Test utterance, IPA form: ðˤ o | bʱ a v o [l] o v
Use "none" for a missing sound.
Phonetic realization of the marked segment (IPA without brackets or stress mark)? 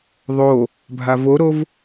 ɾ